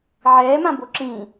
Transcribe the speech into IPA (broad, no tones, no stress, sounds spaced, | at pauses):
ʕ ɛː m ã b o ǁ ĩː